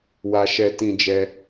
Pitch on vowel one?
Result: high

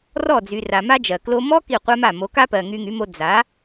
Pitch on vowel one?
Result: falling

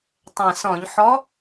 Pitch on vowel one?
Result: low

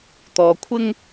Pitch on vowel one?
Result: low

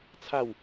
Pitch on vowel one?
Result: falling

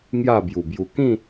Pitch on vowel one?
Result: falling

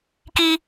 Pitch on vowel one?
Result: high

